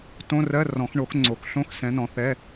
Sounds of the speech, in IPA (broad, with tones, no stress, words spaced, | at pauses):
tõ˧˥˧rɜ˧˥˧ rɔ̃˨˩˦x ɳo˨˥xŋ͡ǀo˨˩˦xɬõ˧˥˧x sɛ̃˨˥nɔ̃˨˥θɛ˧˥˧